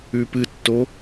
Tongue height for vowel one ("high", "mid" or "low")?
high